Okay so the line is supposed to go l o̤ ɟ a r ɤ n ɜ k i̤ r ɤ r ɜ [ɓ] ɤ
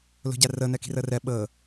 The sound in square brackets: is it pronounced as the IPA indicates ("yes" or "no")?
yes